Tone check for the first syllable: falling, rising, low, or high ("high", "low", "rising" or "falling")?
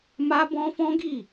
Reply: high